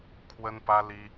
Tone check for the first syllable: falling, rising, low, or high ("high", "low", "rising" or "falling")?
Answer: high